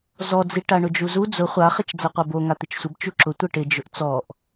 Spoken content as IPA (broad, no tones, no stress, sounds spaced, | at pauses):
z ɔ d͡z i ʈ a ɳ ʊ d͡ʒ u z u d͡z ʊ χʷ a χ ɪ t͡ʃ d͡z a qʷ ɛ b o ŋ a t̪ ɪ t͡ʃ sʷ ɪ b t͡ʃ u ǁ ʊ tʷ ɛ ʈ ɪ d͡ʒ ʊ ʔ t͡s ɔ ʔ